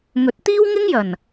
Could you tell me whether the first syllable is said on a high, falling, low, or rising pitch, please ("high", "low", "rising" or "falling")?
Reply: rising